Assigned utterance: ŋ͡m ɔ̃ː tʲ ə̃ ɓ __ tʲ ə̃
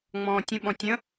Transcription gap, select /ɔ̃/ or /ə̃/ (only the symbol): ɔ̃